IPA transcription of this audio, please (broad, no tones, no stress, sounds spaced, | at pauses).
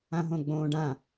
ã ɦ õ ɡ͡b õː ɖ ã